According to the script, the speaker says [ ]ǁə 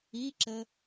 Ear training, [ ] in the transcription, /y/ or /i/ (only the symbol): i